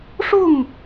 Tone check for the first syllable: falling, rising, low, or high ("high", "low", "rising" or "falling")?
falling